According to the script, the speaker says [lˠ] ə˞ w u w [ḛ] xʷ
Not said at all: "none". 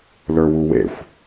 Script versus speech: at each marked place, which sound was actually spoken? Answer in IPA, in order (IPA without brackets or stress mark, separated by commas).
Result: l, ḛ